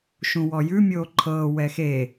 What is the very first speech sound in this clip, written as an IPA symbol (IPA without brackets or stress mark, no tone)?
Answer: ʃ